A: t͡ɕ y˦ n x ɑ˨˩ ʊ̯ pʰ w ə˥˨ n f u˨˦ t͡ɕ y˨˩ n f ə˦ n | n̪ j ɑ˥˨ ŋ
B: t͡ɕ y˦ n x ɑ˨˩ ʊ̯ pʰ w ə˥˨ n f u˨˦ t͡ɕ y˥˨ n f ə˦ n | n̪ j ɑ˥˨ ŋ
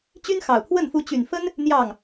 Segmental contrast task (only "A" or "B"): A